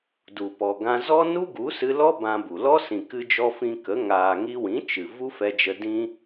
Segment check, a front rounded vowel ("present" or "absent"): absent